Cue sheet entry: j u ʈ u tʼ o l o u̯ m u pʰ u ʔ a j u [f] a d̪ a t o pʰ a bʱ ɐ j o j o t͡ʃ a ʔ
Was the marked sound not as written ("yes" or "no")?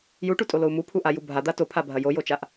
yes